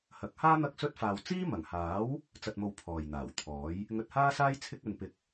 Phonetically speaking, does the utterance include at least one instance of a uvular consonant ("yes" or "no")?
no